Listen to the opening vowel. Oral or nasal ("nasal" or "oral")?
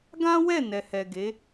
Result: nasal